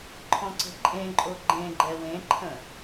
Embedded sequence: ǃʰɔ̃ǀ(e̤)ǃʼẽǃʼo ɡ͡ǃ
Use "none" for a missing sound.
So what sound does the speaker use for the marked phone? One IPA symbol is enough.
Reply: e̤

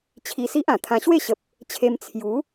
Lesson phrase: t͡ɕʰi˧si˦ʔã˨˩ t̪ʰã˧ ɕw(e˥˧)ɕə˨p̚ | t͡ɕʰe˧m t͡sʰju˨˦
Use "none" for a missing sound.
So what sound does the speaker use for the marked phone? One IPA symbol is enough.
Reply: e˥˧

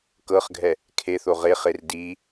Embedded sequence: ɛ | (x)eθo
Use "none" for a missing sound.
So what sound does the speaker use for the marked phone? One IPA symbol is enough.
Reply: kʰ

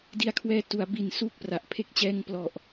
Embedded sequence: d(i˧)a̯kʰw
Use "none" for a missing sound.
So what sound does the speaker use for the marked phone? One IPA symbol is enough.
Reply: i˨˩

